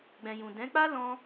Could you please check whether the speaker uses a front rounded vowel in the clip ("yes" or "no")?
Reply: no